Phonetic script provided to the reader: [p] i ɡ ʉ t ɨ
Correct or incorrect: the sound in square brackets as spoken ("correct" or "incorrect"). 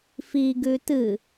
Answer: incorrect